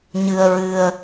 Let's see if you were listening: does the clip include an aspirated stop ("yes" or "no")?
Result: no